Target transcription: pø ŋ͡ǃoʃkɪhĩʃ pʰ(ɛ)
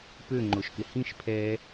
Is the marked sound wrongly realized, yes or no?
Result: no